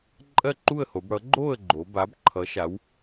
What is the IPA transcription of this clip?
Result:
ǃʼɜ˥˨ǃu˥˨ə̯ho˩˧bɽʌ˨˥ ɡ͡ǃo˥˨ə̯ɡ͡ǃo˩˧ ba˨˥bǃʰʌ˨˥ʃa˨˥w

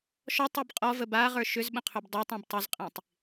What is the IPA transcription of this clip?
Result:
ʃɔtˤib qʼɔvə baʁə˞ ʃʏzɓə̃qʰʏb dˤə˞tˤɔ̃b tˤʏzqʼĩtˤ

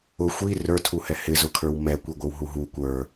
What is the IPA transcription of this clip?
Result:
ʊ xʷi rə˞tʰuhɛ hɪzʊkʰə˞w mɛ kʷiɡʷɪwɦuɦu kʷə˞

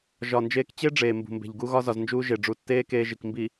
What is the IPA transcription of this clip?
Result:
ʒɒ˨nd͡ʒeː˦k t͡ɕe˦ ɖ͡ʐeː˨mbṳ˨mbe̤˨ʎ ɡu˦ɣɒ˦ zɒ˨znd͡ʒuː˦ ʒe˨ ɖ͡ʐu˨tːeː˦ keː˦ʒi˨k mbi˨

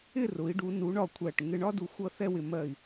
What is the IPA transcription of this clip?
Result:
ɪ˥˧rʊ˩˧i̯ɖu˩˧ nu˩˧ɳɒ˧˩ kʷʰæ˧˩ʈ ŋɪ˧ɳɒ˥ du˧xʷʌ˥˧ θɛ˥˧wɪ˧˩mɜ˧˩i̯

